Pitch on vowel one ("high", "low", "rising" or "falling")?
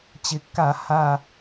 low